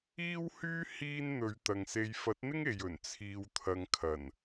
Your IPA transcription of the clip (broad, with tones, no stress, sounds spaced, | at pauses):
iː˥ w h yː˥ h iː˥ n n̪ ɵ˨˧ ɥ t̪ ɐ˨ ŋ s e˧ j f ɐ˨˥ t̚ n̪ ɪ˥ ŋ e˨ j ɵ˨˩ n t͡sʰ iː˨ w t̪ʰ ɐ˨ ŋ kʰ ɐ˨˩ n